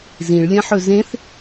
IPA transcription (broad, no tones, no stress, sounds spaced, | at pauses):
z ĩ ɭ lʲ ɐ̃ ħ ɵ z ẽ θ